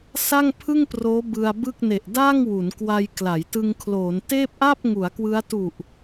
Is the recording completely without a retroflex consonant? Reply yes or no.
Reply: yes